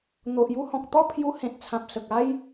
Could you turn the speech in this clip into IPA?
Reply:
n̪ o˨ ʔ j u˦ h ɔ̃˨ k̚ t̪ ɔ˥˧ pʰ j u˧ h ẽ˨ t̚ t͡sʰ ã˨ p̚ s ə˨ k̚ a˦ j

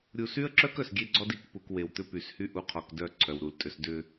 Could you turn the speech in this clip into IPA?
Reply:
ɾʲ u˨ s y˦ ə̯ ǁ œ˦ k œ˨ s ɡʲ e˦ ɡ͡ǀ ɔ˦ d i˨ k p u˨ k w e˨ w t̪ ʏ˦ p y˨ s h y˦ ʔ u˨ qʰ ɔ˨ k d œ˨ ǀʰ œ˨ w ɾ u˨ l tʼ ʏ˨ s d ʏ˨

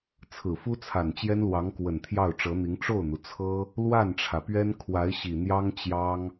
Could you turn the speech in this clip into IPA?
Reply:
t͡sʰ ɹ̩˨˩ f u˥ t͡sʰ a˨˩ n t͡ɕ j ɛ˥ n l w ɑ˧˥ ŋ k w ə˨˩ n t̪ʰ j ɑ˥˩ ʊ̯ ʈ͡ʂ ɤ˧˥ n̪ i˧˥ ŋ ʈ͡ʂ o˥˩ ʊ̯ n̪ u˩ t͡sʰ ɤ˥ | l w a˥˩ n ʈ͡ʂʰ ä˩ p ɥ ɛ˥ n kʰ w a˧˥ ɪ̯ ɕ i˨˩ n̪ j ɑ˥ ŋ t͡ɕ j ɑ˥ ŋ

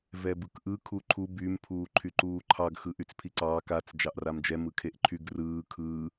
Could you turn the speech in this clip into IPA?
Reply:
v ɛ b ɯ k ʔ ɯ kʰ u ǃʰ u b y m pʰ uː ǃʰ y ǃ uː ǃʰ ɑ ɡ x ɯ ʔ y t͡s pʰ i ǀ ɑː k a t͡s d͡ʒ ɑ ʔ r a m d͡ʒ ɛ m ɯ kʰ e ʔ ǃʰ y ɡ r ɯː kʰ ɯː

